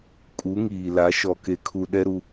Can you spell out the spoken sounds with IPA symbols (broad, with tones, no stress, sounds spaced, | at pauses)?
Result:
kʼ u˨˦ ŋ iː˨ l a˨˦ ʃ ɔ˨ k e˨ kʰ u˨ ɗ ɛ˦ ɾ u˦